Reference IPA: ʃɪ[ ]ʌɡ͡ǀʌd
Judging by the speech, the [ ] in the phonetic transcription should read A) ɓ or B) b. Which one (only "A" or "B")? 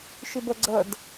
B